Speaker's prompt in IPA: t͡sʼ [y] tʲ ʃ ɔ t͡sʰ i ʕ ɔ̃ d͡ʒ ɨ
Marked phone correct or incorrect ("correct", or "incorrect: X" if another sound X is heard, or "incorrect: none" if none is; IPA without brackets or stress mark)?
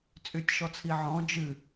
correct